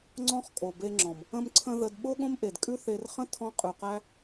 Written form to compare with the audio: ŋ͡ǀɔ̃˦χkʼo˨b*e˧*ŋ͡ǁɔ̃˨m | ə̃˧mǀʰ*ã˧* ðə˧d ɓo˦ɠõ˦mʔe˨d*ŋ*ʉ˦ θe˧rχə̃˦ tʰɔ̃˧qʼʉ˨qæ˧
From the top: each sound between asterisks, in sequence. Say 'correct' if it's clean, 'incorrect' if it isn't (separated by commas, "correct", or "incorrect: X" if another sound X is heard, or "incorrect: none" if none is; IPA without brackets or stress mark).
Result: correct, incorrect: ə̃˧, incorrect: kʼ